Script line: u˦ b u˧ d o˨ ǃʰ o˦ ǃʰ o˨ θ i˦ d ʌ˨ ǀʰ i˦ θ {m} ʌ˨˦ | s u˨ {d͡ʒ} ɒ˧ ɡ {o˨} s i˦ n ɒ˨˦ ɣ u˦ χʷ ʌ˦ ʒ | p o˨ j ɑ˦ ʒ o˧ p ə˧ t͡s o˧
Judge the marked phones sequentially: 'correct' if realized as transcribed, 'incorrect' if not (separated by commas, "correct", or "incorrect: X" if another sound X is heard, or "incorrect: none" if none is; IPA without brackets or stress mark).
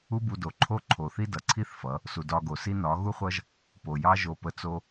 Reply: incorrect: f, incorrect: d, correct